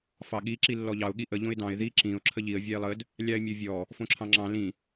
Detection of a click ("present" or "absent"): present